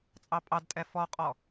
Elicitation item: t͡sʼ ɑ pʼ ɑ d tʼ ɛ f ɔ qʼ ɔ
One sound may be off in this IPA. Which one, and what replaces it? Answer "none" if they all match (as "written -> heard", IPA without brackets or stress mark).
none